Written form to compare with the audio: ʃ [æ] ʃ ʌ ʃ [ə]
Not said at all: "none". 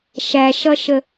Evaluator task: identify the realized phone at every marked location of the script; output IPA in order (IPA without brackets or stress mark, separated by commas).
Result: æ, ə